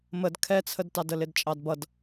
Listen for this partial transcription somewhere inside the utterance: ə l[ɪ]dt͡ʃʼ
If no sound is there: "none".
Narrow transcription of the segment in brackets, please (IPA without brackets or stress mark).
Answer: ɪ